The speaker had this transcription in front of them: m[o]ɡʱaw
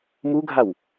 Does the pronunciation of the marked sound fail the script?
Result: yes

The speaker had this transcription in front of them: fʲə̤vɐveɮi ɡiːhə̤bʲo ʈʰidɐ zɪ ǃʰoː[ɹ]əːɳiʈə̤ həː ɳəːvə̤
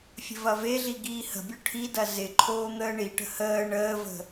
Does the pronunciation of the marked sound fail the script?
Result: yes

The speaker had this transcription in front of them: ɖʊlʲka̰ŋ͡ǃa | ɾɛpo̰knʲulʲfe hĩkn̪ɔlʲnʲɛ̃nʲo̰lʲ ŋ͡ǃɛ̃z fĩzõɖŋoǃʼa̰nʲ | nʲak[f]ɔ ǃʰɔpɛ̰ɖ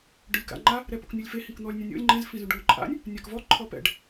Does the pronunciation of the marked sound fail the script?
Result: yes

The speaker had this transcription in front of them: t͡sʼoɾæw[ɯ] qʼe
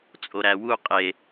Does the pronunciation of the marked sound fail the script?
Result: yes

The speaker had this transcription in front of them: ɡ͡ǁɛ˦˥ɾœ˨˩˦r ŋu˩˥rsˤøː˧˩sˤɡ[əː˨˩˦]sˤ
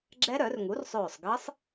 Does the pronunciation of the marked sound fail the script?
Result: yes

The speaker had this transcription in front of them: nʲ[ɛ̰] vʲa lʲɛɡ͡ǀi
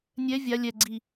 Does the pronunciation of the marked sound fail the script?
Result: yes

